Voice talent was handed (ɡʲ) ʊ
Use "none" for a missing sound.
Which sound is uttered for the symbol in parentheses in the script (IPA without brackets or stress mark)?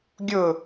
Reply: ɡʲ